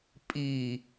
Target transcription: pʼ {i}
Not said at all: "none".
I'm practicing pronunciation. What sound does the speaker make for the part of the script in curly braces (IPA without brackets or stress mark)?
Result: i